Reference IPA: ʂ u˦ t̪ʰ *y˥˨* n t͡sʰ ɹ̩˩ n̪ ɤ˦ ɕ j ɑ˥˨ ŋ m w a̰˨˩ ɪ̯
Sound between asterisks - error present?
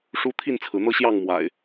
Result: yes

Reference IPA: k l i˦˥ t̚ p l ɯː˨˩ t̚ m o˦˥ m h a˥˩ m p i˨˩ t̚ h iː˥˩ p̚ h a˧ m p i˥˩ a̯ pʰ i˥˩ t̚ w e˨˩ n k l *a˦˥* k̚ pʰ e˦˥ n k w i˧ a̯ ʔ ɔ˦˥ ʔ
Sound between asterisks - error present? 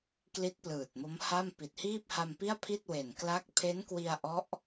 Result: no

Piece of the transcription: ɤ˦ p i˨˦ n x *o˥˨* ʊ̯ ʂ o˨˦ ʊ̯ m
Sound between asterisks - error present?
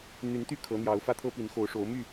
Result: yes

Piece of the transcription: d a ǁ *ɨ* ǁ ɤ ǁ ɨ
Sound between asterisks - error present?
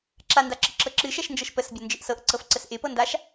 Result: yes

